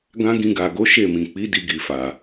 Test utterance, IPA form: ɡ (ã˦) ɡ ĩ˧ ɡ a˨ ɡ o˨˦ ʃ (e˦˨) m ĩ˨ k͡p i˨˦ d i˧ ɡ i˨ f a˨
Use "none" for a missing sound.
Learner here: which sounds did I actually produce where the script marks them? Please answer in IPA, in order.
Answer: ã˦, e˦˨

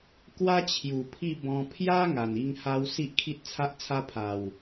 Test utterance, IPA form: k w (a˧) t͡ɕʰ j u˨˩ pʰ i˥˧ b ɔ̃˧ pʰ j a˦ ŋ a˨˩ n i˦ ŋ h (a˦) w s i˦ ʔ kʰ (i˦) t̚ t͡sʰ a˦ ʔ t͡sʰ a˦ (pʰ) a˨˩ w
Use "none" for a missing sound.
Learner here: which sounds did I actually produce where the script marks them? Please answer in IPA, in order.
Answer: a˦, a˦, i˦, pʰ

